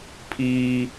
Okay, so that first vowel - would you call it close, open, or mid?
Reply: close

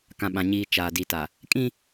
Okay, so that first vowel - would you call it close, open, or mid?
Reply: open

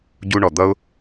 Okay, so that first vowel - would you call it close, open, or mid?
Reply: close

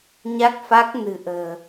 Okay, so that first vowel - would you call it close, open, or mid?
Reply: open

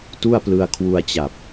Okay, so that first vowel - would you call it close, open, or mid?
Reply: close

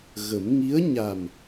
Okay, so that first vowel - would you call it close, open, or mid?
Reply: mid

